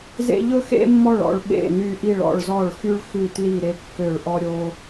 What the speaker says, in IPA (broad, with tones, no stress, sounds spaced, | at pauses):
z ḛ˥ ʎ ɵ˥ x ḛ˥ mː ɔ˥˩ ɭ ɔ̰˥˩ ɭ ɓ ḛ˥˩ n y˥˩ ʔ i˥˩ ɭ ɔ̰˥˩ ɭ z ɔ˥˩ ɭ x y˥ ɭ x ʉ˥˩ t l i˥˩ ɾ e˥˩ kː ø˥˩ ɭ ʔ ɔ˥ ɾʲ o˥